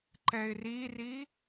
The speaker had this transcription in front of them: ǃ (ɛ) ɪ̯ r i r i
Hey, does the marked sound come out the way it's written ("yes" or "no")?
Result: yes